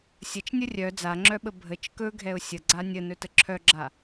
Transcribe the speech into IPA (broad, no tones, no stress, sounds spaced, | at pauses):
sʲ ə t͡ʃ nʲ ə rʲ œ d͡z a ŋ͡ǁ œ ɓ ə bʱ ə t͡ʃ k ɵ ɡʱ ɛ ʊ̯ sʲ ə ɡ͡ǀ a nʲ ə n ɵ t ə ǁʰ œ ɡ͡ǁ a